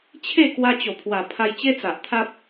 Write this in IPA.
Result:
t͡ɕʰ e˥˧ k w a˧ t͡ɕ o˨˩ pʰ w a˨˩ pʰ a˧ j t͡ɕ e˦ t͡s a˨ ʔ t̪ʰ a˦ p̚

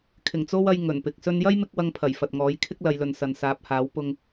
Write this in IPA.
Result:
kʰ ɪ˨˩ ŋ t͡s o˥ w ɐ˧ j ŋ ɵ˨˩ n p ɪ˨ k̚ s ɵ˥ n j ɐ˥ j m ɪ˧ k̚ w ɐ˧ ŋ pʰ ɐ˨˩ j f ɐ˨ t̚ ŋ ɔː˨˥ j kʰ ɪ˥ k̚ l ɐ˨˧ j l ɵ˨ n s ɐ˨ n s aː˨˥ p̚ h aː˨˥ w p ʊ˧ ŋ

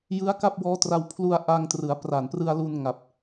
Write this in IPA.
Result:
j ɯ˦˥ a̯ k a˥˩ p̚ w ɔː˦˥ t r a˧ w pʰ l u˧ a̯ ʔ a˧ ŋ t r ɯ˩˦ a̯ p r a˨˩ n p r ɯ˧ a̯ l u˧ n ŋ a˨˩ p̚

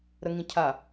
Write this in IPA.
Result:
ɾ ə ŋ ĩ cʰ a

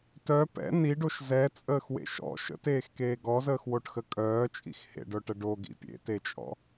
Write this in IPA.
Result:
t œ p ɛ̰ n i ɖ o ʃ z ɛ t͡sʼ əː x w ḛ ʃ ɔ̰ ʃ ə̰ t eː x k eː ɡ ɔ z əː x w o ʈ x ə kʼ œː t͡ʃʼ ḭ x h ḛ ɖ œ ʈ ə ɖ o ɡ ḭ pʲ ḛ t e t͡ʃʼ ɔ̰

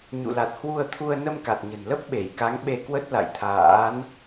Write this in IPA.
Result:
ɲ ṵ˧˨ l a˨˩ t̚ h w u˧ ə̯ t̪ʰ u˧ ə̯ n ə˧ m k a˨˩ t̚ ɲ ə̤˨˩ n l ə˦˥ p̚ ɓ e˧˩ j k a˨˦ ŋ ɓ e˧ k w ə˦˥ t̚ l a̰˧˨ j t̪ʰ a̰ː˧˥ n

